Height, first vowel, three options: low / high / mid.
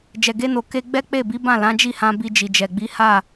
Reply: mid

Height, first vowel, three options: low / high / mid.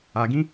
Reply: low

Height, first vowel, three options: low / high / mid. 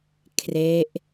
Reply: mid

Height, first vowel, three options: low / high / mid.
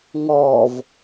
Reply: mid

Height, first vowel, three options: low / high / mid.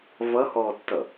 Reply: mid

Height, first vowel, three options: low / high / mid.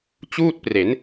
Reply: high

